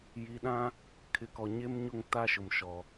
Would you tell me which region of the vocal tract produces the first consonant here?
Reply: palate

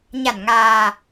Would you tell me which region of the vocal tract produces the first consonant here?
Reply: palate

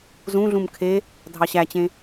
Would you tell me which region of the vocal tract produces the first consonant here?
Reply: tongue tip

